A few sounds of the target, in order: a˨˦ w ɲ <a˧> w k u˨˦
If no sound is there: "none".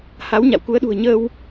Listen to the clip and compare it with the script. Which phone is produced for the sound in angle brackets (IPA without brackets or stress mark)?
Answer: a̰˧˨